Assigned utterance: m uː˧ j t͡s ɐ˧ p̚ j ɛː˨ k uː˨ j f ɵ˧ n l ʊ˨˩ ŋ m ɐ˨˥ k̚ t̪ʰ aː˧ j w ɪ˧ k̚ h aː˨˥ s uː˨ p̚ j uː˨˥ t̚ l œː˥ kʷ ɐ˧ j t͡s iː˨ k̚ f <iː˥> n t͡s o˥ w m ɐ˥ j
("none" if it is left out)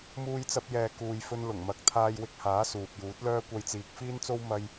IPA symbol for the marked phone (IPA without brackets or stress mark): iː˥